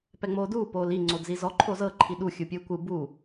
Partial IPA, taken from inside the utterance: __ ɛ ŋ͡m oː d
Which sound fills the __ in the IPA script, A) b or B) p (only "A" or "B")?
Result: B